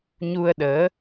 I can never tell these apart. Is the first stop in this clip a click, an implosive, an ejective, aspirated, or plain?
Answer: implosive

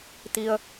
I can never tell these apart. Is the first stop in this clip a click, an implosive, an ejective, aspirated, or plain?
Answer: plain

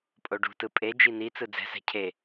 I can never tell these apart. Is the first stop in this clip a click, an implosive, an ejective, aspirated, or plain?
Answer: ejective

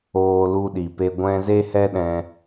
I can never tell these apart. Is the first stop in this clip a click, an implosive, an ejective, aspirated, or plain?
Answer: implosive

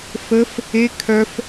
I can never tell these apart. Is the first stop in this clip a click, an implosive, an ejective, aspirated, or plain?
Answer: aspirated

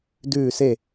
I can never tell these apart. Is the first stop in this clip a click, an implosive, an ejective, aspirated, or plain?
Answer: plain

